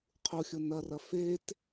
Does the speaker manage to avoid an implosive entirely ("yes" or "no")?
yes